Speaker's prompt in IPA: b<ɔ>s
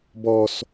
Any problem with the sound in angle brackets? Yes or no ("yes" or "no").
no